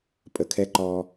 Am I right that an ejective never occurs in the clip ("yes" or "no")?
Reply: no